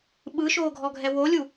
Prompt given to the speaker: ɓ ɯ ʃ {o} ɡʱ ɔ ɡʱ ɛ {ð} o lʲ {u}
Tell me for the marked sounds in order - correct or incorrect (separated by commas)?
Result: incorrect, incorrect, correct